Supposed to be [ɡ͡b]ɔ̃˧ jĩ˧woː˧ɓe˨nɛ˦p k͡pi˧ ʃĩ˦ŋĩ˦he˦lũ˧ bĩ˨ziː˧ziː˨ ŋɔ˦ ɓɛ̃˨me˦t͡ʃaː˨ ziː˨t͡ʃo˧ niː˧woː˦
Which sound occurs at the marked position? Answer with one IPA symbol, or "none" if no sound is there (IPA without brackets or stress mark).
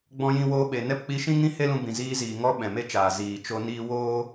ɡ͡b